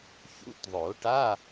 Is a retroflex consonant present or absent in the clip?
present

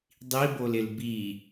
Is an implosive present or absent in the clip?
absent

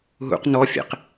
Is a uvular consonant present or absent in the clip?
present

